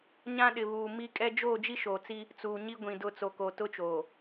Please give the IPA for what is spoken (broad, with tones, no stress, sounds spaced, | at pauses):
ɲ ã˦ ɗ ɪ˨ β uː˨ m i˦ kʼ ɛ˦ d͡ʒ oː˦˨ d͡ʒ i˦ ʃ oː˨ t͡s i˦ | t͡s uː˨ ɲ i˦ ɡʷ ĩ˨ d ʊ˦˨ t͡s o˨ k o˨ t ʊ˦ t͡ʃ oː˨